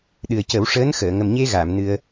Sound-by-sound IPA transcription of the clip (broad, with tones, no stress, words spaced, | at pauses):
ɗɨ˨˩ə̯cə˨˩˦wʂəː˧˥n xəː˨˩˨ ŋə˨˩mɲe˧ ɣa˨˩˨mnɨ˧ə̯